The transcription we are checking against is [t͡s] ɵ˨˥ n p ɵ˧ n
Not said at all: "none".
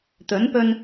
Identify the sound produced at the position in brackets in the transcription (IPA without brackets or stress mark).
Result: t̪